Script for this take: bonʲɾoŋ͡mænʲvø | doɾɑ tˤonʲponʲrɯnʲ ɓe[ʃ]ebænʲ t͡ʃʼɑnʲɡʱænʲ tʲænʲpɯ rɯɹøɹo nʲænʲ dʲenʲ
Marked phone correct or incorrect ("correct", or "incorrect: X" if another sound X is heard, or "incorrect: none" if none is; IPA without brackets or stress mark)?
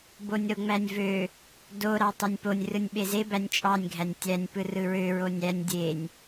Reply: incorrect: z